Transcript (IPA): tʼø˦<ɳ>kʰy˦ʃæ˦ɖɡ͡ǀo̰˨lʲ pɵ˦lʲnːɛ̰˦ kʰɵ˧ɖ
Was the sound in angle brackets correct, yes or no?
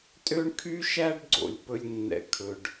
yes